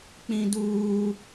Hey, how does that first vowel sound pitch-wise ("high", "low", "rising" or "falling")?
high